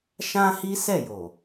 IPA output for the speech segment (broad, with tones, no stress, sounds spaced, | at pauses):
ʃ ã˦ h i˦ s ɛ˦˨ j o˨